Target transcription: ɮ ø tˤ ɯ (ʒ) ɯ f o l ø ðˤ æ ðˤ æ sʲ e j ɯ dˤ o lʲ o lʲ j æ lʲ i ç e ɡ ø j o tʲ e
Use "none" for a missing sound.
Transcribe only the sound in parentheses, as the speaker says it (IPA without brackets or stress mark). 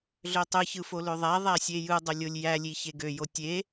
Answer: ç